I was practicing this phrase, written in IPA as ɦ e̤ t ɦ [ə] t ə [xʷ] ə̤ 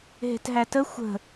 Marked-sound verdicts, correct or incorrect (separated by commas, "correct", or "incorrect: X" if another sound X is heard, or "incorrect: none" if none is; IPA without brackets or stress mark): incorrect: æ, correct